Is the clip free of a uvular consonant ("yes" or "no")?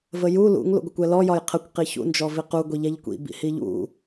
no